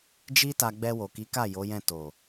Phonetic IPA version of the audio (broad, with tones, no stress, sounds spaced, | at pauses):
d͡ʒ i˦ t a˧ ɡ͡b ɛ˧ w o˨ k i˨˦ k a˦˨ j o˨˦ j ɛ̃˦˨ t o˨